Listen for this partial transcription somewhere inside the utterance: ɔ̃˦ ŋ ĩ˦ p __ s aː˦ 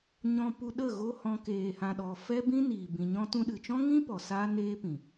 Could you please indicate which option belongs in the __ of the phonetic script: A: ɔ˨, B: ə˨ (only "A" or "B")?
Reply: A